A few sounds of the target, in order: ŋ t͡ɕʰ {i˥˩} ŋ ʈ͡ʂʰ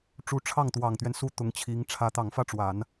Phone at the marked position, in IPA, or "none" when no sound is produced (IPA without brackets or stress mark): i˧˥